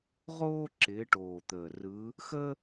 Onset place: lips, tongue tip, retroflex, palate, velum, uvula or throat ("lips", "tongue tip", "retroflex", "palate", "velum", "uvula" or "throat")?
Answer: uvula